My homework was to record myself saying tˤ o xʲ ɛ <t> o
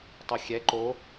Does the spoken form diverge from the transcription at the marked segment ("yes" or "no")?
yes